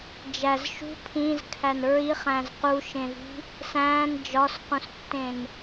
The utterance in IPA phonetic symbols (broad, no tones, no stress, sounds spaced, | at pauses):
d͡ʒ æ z ʃ ṳ pʰ ĩ z kʰ æ n ɹ i χ æ̃ z q u ʃ ẽ v i̤ | s æ̃ː n d͡ʒ ɒ s q ũ s tː ẽ n